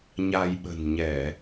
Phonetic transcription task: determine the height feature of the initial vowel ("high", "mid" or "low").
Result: low